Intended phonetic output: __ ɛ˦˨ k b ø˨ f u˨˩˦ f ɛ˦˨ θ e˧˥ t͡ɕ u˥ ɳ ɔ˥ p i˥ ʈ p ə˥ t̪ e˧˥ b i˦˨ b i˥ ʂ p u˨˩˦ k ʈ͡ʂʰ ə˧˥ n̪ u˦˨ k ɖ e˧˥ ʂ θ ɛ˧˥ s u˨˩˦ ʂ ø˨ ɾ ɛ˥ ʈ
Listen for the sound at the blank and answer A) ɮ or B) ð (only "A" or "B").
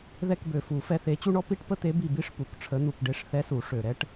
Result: B